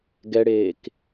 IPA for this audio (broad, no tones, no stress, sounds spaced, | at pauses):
ɡ ɛ ɽ eː k